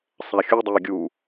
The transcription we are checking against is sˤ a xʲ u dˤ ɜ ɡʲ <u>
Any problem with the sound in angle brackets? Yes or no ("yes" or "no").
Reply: no